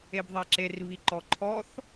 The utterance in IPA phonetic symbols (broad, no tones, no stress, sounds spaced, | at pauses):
e b ðˤ a ǁ e r β i ǃ ɔ ǃʰ ɔ θ